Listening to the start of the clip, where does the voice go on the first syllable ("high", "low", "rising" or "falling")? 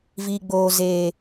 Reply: low